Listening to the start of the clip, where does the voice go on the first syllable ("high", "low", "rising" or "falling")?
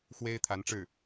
high